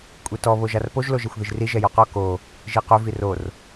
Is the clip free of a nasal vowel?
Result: yes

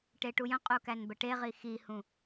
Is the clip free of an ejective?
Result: no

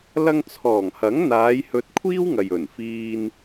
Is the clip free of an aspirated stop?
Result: no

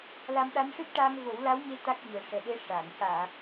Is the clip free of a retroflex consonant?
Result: no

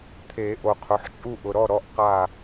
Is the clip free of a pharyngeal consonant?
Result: no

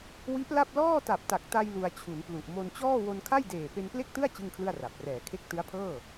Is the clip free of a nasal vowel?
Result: yes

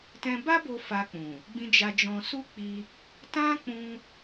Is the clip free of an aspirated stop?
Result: yes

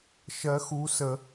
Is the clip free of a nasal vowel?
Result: yes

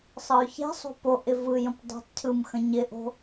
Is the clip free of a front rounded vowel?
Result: no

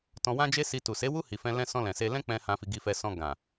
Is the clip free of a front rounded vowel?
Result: yes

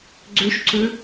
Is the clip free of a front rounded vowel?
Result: no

